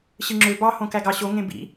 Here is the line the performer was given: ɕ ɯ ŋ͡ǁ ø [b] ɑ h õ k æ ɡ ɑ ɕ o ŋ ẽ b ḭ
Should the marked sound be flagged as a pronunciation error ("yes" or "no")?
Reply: no